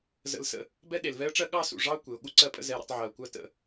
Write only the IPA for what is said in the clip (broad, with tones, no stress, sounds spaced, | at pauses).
z ə̰˧ l s ə̰˧ | b ɛ˦ ɗ e˨ l v ɛ˦ ə̯ ʈ͡ʂ ɜ˦ ɠ ɑ˦ s ṵ˨ ʐ ɑ˦ ʊ̯ kʷ e˨ ʊ̯ ɠ u˧ ǀ ɜ˧ pʼ ə̰˧ z ɛ˧ ɾ ə̰˧ tˤ ʕ ɜ˨ ʊ̯ kʷ ɜ˦ t ə̰˧